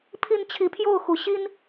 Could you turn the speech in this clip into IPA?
pʰi˨˦n t͡ɕʰi˨˦pʰjo˥˨ʊ̯xu˨˦ ɕi˦n

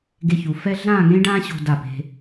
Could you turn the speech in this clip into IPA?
ɡe˧çu˩˧fɛ˥ ɮãː˥˧ŋẽ˥ɖãː˥ɕo̤˧ da˧˩pe̤˧

